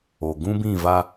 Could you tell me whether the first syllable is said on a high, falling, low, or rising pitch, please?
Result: low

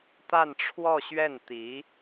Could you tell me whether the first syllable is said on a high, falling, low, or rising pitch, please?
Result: falling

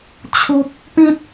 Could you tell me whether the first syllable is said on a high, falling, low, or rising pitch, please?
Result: high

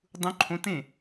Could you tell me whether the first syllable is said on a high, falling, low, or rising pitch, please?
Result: rising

